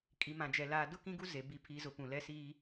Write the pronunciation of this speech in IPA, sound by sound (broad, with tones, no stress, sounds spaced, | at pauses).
kʼ i˨ m ã˨ d͡ʒ ɛ˨ l aː˨ d ʊ˦ k ĩ˦ ɡ u˦ z e˨ b i˨ pʰ i˨ z ʊ˨ p ũ˨ l ɛ˦ s iː˦